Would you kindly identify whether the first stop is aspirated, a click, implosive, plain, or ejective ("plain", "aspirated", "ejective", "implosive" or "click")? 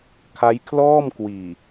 aspirated